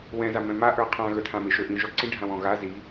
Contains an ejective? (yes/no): no